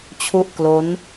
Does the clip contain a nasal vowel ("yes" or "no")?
no